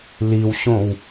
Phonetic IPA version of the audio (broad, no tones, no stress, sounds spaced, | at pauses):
l i w ɕ õ w